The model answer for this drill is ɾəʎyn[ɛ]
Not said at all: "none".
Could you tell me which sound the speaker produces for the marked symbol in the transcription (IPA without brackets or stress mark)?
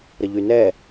ɛ